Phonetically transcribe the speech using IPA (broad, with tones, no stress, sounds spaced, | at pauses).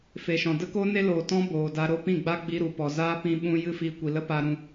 f e˨ ʃ ɔ̃˨ d ə˦ k o˦ n e˦ l oː˨ t ɔ̃˦ b oː˨ d a˧ ɾ o˦ p ĩ˦˨ ɡ͡b a˦ ɡ͡b i˧ ɾ u˨ p ɔ˨ z aː˦ p ĩ˧ ɓ ũ˧ j ɨ˦˨ f i˧ kʷ i˨ l ə˦ p a˧ ɾ ũ˧